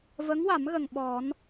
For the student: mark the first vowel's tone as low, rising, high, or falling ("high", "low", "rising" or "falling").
rising